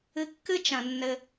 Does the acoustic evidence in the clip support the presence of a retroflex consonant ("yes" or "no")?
no